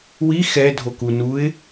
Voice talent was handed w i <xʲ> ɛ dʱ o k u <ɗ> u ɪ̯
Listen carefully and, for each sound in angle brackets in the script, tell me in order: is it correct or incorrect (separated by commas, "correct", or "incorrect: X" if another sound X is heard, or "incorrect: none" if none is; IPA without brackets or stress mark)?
incorrect: x, incorrect: n